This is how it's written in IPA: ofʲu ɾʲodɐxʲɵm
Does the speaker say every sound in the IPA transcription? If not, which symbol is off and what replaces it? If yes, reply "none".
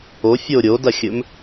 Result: u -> o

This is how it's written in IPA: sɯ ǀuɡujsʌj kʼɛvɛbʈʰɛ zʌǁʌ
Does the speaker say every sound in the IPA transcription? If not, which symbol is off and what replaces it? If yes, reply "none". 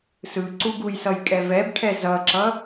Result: none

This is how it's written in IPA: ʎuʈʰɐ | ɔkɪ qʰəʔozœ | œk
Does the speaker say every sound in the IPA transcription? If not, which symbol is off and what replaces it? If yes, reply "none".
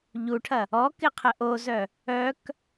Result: none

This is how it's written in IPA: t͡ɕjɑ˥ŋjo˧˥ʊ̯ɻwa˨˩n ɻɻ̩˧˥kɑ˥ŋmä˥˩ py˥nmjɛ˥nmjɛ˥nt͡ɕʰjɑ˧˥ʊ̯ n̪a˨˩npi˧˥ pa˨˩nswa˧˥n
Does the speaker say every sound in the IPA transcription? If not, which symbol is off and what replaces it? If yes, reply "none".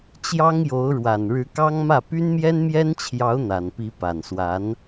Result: none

